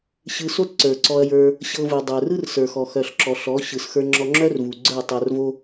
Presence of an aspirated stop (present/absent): absent